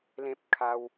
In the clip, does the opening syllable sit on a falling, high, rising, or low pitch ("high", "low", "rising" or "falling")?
high